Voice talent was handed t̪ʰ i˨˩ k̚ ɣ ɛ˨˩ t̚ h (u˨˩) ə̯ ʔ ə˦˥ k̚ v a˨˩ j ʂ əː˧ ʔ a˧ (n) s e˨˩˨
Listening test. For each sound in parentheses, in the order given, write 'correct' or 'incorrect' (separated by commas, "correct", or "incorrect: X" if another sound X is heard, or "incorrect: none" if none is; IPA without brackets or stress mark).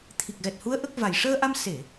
incorrect: u˧˥, incorrect: m